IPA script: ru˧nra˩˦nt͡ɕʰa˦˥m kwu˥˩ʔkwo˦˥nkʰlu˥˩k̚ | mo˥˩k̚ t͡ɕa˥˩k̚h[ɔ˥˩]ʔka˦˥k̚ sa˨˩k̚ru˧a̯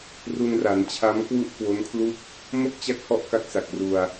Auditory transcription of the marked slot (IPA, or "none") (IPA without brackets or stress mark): ɔ˥˩